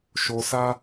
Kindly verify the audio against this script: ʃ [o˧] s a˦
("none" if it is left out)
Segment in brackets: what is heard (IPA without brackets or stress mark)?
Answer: o˧